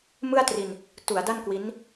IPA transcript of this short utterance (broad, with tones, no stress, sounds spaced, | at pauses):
m ɯ˥˩ a̯ t r i˧ n | t u˩˦ a̯ d a˥˩ n k w i˦˥ n